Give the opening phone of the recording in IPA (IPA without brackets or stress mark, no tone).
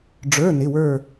ɖ͡ʐ